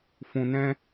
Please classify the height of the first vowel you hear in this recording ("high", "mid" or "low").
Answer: high